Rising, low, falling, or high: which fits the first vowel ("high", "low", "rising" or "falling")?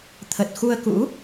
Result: low